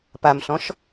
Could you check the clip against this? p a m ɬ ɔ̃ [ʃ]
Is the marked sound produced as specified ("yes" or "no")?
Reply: yes